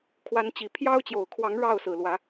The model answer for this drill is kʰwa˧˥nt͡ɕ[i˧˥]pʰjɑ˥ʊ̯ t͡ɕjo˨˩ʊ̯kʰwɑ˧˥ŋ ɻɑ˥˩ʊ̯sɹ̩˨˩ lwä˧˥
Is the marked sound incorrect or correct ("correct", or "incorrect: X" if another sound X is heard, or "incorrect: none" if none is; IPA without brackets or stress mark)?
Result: incorrect: i˨˩